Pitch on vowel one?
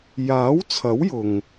rising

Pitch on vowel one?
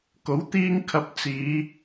rising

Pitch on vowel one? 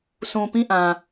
low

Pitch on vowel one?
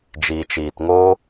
low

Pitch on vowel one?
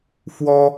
high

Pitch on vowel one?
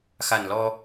low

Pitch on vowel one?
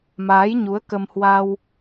rising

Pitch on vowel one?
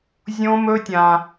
high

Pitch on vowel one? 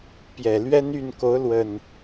low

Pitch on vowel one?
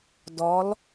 rising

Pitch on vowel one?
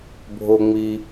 low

